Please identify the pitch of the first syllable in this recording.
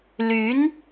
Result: rising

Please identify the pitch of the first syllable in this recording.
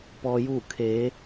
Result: low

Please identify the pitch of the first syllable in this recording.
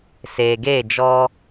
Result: low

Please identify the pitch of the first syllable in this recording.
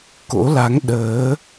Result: rising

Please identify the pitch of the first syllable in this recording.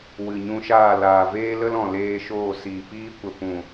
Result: low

